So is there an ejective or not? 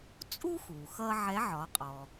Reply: yes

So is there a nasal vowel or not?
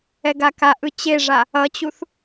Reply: no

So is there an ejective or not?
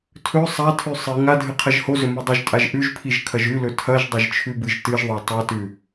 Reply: yes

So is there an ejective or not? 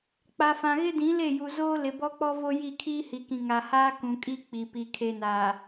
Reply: yes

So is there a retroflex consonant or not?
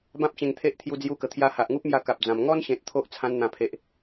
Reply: no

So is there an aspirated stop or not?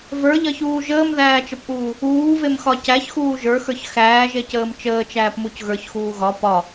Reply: no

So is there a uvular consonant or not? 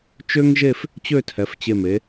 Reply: no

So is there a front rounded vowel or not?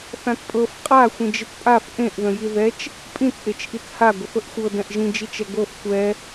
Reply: no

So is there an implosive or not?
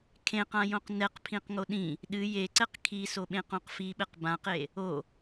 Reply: yes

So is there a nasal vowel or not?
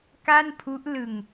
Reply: no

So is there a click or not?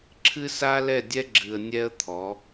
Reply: yes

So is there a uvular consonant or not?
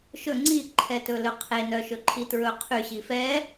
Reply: yes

